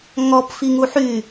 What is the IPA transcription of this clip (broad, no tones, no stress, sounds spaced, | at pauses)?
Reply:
ŋ ɔ p f i ŋ u ħ y